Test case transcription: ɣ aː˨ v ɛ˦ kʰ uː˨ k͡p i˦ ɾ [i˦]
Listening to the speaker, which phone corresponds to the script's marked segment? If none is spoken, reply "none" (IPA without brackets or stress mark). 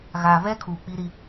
i˦